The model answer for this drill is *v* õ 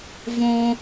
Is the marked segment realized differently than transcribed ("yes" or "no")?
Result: no